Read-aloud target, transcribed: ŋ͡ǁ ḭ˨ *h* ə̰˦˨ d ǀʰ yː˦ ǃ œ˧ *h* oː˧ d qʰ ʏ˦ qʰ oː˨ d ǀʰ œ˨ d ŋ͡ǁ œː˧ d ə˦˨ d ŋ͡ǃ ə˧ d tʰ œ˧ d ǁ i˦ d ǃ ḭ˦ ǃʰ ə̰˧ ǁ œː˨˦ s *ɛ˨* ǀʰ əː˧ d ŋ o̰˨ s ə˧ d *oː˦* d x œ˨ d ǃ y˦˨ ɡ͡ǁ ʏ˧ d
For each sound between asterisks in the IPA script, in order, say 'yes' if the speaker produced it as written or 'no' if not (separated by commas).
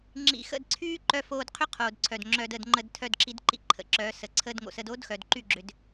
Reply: no, no, no, yes